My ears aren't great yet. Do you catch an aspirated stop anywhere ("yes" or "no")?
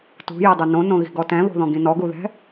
no